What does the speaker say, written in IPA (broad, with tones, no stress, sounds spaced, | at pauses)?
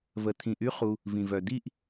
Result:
v ə˨ t̪ʰ ĩ˨ ʔ y˦ χ u˦ | v ĩ˨ v œ˨ d̪ i˦˨ ʔ